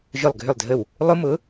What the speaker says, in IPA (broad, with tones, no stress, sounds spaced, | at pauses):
ʒ ʊ˧˩ lˠ ɡʱ ʏ˧˩ lˠ dʱ ə˧˩ w | lˠ ʊ˦˥ m ʊ˩˥